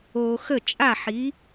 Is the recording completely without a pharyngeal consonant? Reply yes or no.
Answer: no